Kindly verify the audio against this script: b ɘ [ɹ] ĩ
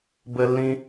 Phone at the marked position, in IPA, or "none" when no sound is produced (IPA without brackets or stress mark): lː